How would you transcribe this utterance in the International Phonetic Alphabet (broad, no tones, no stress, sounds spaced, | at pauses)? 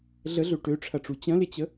ɮ ə ɮ ø ʈ ø ʈ͡ʂʰ ɐ ʈ͡ʂ u t͡ɕ ɐ̃ l ɪ t͡ɕ ə